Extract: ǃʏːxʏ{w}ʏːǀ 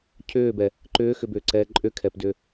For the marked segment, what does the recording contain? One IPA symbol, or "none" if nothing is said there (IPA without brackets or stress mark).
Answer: b